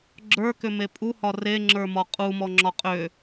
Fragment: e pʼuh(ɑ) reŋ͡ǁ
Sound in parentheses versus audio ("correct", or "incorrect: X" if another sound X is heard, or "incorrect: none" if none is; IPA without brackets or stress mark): incorrect: ɒ